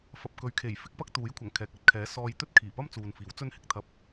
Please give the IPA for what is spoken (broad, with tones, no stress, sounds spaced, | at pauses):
f ɐ˨ p̚ k ɵ˨˧ ɥ kʰ e˨˩ j f ɪ˥ k̚ p ɐ˥ k̚ t̪ uː˨˥ j kʷʰ ɐ˨˩ ŋ kʰ ɛː˨ k̚ ɐ˧ t̚ kʰ ɛː˨˥ s ɔː˧ j t̪ ɵ˥ t̚ kʰ iː˨˩ p ɐ˥ m t͡s uː˨ n f iː˨˥ w t͡s ɵ˥ n h ɪ˧ k̚ t̪ʰ ɐ˧ p̚